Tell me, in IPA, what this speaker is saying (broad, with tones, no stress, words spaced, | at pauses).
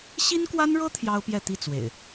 ɕi˦nkwa˦nɻɤ˦ t̪ʰjɑ˦ʊ̯pjɛ˥˨t̪i˥˨ t͡swḛ˨˩ɪ̯